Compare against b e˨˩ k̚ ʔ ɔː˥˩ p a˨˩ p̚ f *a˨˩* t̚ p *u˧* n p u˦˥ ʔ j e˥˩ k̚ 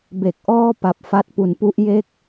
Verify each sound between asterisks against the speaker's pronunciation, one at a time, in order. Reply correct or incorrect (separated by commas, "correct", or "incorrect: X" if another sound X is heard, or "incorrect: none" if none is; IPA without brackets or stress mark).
incorrect: a˦˥, incorrect: u˩˦